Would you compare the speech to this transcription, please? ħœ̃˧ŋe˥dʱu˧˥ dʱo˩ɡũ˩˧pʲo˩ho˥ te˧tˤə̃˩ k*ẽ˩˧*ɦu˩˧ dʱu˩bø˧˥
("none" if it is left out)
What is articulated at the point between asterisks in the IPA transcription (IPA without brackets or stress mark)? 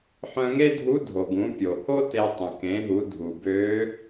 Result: ẽ˩˧